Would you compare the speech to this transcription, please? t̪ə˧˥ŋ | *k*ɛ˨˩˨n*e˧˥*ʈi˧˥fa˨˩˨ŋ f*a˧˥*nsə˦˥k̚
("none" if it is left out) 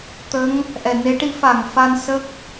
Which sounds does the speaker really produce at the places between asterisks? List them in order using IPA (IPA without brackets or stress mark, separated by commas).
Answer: ʔ, e˧˥, a˧